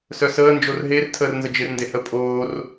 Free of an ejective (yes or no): no